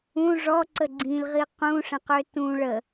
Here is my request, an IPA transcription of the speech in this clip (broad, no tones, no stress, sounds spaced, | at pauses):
ũ ʐ ɔ ǀ ə ɡ͡ǀ ĩ l ʁ i q ũ ʂ ə̃ q ø t ũ ɭ ə